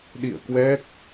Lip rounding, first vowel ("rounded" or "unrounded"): unrounded